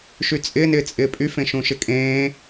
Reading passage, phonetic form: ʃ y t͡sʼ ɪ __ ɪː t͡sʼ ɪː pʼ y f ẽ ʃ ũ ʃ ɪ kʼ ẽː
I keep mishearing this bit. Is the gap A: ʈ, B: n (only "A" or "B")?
B